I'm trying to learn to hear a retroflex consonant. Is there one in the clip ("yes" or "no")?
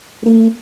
no